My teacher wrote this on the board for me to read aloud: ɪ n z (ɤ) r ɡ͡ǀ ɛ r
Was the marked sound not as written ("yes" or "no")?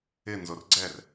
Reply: yes